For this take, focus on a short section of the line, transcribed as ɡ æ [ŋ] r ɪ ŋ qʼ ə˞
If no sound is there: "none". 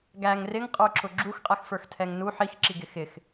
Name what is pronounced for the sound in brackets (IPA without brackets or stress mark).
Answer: ŋ